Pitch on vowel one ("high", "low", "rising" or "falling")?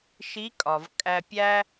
rising